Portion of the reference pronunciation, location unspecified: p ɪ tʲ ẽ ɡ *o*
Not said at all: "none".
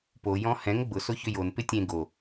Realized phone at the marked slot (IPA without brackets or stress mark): o